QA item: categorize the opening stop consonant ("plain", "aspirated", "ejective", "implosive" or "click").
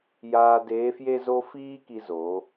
plain